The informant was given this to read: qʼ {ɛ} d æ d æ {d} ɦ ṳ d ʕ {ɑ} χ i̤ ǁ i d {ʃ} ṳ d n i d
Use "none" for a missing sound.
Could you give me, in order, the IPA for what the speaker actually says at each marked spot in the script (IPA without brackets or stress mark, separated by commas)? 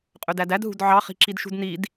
ø, d, ɑ, ʃ